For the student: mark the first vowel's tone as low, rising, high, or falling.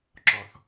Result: low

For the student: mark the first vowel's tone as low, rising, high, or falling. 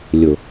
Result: low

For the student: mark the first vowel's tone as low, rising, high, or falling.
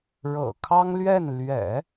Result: low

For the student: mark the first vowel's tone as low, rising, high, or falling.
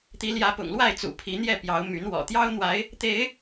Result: rising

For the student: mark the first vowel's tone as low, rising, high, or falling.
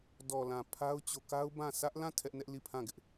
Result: low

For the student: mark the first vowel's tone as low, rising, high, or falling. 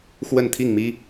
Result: falling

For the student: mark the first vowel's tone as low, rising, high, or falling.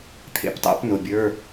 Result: rising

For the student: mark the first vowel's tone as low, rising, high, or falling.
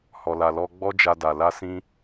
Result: low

